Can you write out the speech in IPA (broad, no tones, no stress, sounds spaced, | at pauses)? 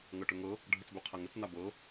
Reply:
ŋ ɤ ʈ ø ŋ ɤ | ɖʱ ə t͡s b ø qʰ a ŋ ə t͡s n a b ɤ